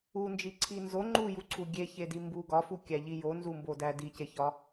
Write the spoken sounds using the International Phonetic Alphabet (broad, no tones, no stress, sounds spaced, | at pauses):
u n d͡ʒ i ǀʰ i n z o ŋ͡ǃ u j u ǀʰ u ɡʲ e ç e d i m b u ɡ ɒ f u kʲ æ ʎ i j o n z u m b o d æ d i c e ç ɒ